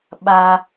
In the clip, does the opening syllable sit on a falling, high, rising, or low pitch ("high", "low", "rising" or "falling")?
low